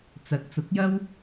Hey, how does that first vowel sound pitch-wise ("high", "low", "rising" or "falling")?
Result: rising